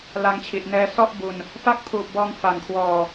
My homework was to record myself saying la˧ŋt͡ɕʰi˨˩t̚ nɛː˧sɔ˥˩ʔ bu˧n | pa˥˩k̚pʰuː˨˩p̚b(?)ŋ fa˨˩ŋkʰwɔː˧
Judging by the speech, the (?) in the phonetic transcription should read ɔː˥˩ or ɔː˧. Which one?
ɔː˧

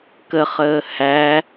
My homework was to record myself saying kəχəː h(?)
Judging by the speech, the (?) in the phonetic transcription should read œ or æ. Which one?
æ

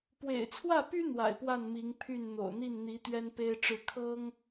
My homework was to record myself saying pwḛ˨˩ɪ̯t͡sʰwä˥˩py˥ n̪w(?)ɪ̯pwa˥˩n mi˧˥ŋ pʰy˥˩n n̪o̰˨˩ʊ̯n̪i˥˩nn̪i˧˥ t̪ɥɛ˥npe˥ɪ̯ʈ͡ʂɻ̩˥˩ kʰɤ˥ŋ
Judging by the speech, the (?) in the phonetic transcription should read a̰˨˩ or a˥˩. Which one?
a̰˨˩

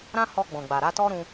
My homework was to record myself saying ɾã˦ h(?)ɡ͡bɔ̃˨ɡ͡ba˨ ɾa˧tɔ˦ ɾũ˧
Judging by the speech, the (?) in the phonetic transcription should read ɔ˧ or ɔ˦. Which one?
ɔ˧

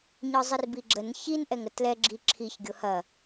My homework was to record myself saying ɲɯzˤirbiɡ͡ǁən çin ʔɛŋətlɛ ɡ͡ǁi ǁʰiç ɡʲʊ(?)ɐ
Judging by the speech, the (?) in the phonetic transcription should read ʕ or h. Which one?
h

